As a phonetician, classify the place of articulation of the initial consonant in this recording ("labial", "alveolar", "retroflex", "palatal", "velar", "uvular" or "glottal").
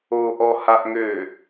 glottal